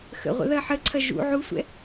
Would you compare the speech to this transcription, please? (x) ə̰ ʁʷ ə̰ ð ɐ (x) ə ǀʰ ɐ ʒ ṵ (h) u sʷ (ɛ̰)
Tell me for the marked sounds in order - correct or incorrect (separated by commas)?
correct, incorrect, incorrect, correct